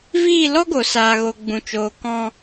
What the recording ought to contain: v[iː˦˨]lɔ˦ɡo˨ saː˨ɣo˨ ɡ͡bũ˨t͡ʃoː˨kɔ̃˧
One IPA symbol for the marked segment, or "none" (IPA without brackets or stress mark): iː˦˨